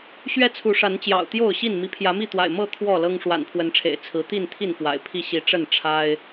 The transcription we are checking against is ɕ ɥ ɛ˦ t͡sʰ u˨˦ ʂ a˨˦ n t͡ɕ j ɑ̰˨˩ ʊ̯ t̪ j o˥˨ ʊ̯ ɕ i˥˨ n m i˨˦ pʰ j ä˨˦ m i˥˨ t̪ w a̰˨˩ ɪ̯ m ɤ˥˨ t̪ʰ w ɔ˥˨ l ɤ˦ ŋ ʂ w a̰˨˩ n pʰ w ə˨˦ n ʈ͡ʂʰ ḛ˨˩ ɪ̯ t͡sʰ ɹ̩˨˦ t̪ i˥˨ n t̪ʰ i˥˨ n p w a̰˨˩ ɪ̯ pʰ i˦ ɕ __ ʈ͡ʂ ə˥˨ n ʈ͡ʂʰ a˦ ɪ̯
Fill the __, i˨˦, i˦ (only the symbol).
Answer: i˨˦